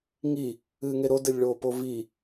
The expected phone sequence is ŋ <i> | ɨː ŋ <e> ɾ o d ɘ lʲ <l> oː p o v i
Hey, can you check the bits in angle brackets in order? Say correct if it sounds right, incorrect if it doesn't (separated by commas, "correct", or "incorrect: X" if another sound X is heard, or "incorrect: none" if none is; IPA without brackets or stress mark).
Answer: correct, correct, incorrect: ɭ